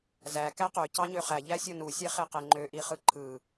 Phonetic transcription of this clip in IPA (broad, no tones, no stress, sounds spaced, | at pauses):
z æ k æ q ø c ɑ ɲ ø χ æ ʎ æ sʲ o n u sʲ e χ e q e ŋ͡ǃ ø ʔ i χ ɯ ǃʰ ɯ